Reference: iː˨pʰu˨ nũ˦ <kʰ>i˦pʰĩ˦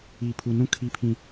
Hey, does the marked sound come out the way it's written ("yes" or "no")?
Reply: yes